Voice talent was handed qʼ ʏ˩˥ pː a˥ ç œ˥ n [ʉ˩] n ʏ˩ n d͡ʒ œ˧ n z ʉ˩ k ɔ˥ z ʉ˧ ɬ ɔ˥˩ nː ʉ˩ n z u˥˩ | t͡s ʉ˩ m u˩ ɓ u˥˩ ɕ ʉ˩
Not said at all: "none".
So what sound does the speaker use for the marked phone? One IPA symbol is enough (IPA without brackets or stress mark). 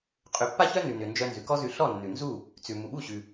ʉ˩